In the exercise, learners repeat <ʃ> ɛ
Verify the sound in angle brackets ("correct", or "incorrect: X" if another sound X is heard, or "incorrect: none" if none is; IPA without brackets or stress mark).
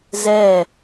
incorrect: z